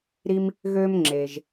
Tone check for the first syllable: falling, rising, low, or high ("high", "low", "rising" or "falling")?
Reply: high